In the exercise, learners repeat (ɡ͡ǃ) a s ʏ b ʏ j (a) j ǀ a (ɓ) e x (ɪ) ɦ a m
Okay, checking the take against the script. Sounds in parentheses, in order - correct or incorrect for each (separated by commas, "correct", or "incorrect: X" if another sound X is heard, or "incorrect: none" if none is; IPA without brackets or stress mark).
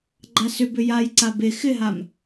correct, correct, incorrect: b, correct